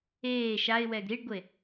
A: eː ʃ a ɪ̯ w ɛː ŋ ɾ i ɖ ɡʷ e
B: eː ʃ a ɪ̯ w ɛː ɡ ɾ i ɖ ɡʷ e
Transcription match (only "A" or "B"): B